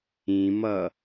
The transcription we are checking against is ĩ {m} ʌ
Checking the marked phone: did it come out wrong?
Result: no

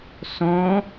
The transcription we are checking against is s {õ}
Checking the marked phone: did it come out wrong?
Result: no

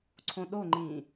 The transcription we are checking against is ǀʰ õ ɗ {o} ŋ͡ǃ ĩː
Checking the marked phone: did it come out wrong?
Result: no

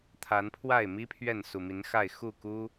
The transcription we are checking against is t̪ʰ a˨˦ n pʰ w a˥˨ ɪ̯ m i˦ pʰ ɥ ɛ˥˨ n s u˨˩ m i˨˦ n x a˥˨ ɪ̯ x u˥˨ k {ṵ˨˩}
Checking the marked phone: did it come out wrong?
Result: yes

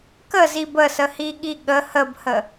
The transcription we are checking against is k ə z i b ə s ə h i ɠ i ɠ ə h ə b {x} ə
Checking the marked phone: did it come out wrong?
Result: yes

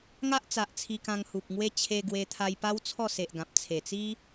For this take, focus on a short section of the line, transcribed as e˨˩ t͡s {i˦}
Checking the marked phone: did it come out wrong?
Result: no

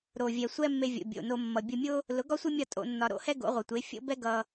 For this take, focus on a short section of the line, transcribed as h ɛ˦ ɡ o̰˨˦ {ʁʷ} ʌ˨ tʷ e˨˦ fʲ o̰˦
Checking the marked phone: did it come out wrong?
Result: no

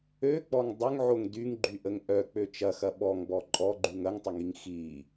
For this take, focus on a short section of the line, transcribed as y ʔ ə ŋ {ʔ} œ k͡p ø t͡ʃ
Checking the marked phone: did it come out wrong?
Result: no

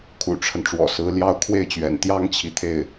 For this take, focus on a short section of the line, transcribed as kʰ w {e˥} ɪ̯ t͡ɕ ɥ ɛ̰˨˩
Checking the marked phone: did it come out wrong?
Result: yes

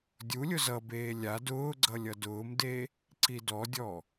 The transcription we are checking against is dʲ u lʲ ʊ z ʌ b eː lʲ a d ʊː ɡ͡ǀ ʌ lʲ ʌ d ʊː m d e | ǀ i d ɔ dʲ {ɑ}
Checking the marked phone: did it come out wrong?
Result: yes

